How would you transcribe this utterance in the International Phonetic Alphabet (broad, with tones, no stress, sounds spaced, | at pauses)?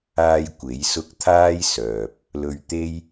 aː˧ j kʷ e˨˥ j s ʊ˥ k̚ t̪ʰ aː˥ j s œː˨ p̚ | l ɵ˧ ɥ t̪ e˥ j